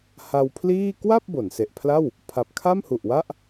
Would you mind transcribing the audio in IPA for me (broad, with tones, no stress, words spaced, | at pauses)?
ha˧wpʰliː˥˩ kwa˥˩p̚ bo˩˦nse˨˩ʔpʰla˥˩w | pʰa˨˩p̚kʰa˥˩mhu˨˩ʔwa˥˩ʔ